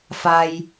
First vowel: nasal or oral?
oral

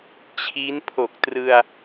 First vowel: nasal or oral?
oral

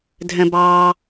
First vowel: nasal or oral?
nasal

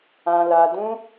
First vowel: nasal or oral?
nasal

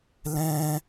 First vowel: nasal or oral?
nasal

